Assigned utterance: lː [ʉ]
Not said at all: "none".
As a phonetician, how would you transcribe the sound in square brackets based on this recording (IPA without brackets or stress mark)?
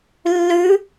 ʉ